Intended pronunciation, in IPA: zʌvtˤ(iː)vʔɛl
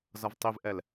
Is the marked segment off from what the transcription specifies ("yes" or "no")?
yes